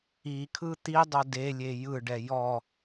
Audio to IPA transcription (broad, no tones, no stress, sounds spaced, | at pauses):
i kʰ ɯ t̪ i dˤ o d e lʲ e j ɯ ɖ ɛ j ɔ